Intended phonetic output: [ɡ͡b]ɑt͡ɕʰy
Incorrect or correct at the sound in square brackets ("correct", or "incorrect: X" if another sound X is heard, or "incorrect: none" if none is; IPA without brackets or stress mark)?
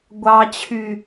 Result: incorrect: ɡʷ